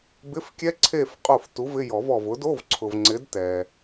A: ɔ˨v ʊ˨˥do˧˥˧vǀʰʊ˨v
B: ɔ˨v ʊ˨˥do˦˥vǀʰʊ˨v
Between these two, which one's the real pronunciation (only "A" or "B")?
A